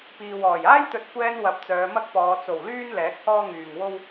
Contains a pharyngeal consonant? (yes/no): no